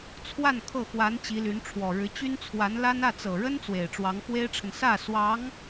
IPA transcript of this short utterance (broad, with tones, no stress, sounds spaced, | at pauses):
t͡sʰ w a˥˧ n kʰ ɤ˥˩ x w a˧˥ n t͡ɕ i˧˥ l y˧˥ n ʈ͡ʂʰ w ɔ˨˩ ɻ ɻ̩˧˥ t͡ɕ y˥ n t͡sʰ w a˧˥ n l a˥ n ä˥˩ t͡s ɤ˨˩ ɻ ə˥ n t͡s w e˨˩ ɪ̯ ʈ͡ʂ w ɑ˧˥ ŋ x w e˥ ɪ̯ ʈ͡ʂʰ ə˨ n s ä˥˩ s w ɑ˧˥ ŋ